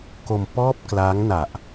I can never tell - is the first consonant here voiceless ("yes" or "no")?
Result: yes